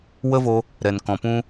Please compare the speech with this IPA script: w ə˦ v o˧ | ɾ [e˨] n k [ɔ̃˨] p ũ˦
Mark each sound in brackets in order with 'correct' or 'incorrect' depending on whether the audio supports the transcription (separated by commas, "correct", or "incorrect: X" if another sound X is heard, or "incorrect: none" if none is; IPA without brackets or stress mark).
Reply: incorrect: ɛ˨, correct